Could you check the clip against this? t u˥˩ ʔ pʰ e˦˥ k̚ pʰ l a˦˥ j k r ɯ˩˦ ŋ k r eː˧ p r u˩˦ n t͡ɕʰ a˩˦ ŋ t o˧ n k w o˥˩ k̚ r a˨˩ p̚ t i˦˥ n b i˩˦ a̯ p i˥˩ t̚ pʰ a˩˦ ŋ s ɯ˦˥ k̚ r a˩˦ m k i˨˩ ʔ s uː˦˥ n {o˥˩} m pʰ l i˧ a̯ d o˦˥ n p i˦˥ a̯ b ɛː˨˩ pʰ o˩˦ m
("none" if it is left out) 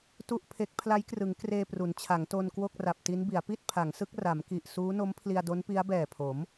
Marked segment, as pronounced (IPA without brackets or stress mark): o˦˥